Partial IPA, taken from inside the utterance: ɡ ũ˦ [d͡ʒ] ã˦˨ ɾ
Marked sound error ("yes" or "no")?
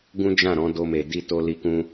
no